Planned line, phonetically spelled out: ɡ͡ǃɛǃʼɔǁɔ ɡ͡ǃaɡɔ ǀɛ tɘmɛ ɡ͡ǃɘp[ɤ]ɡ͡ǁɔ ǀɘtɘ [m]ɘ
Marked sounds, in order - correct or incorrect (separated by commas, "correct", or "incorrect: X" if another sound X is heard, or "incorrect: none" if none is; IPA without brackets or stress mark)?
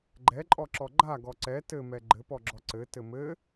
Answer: incorrect: ɔ, correct